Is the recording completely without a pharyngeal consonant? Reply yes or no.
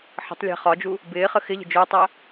no